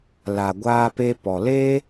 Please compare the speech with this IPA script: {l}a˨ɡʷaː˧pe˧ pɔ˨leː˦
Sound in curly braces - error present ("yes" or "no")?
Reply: no